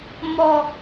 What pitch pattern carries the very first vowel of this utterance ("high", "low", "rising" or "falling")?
low